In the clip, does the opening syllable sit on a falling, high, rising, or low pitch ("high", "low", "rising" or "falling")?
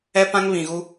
high